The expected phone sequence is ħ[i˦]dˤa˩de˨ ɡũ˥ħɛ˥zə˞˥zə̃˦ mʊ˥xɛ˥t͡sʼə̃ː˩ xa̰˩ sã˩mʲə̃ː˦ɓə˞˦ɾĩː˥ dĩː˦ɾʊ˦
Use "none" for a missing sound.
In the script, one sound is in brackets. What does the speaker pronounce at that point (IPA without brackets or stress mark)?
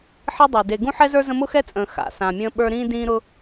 i˦